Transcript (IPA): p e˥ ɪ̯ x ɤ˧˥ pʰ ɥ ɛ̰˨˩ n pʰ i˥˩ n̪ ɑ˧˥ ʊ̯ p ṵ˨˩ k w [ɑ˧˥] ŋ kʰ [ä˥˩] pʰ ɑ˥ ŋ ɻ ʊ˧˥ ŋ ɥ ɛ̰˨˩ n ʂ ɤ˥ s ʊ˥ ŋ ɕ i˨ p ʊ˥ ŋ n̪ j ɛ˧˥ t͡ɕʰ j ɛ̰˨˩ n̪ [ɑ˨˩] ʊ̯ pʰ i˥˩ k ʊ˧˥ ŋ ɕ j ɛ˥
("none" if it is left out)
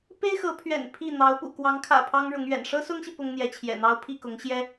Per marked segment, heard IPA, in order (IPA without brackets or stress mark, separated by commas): ɑ˧˥, ä̰˨˩, ɑ˥